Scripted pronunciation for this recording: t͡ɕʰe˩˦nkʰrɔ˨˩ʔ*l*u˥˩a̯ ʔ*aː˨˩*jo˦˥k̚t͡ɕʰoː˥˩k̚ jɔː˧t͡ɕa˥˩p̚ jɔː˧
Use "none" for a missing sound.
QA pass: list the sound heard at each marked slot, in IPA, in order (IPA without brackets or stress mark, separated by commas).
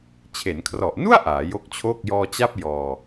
n, aː˩˦